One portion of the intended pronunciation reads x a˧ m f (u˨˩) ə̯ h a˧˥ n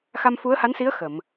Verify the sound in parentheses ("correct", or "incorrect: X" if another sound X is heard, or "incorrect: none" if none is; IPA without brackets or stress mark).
incorrect: u˧˥